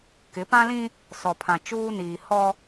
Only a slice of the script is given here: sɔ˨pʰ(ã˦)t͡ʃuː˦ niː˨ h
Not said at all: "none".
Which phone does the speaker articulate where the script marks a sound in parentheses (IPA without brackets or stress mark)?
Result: ã˨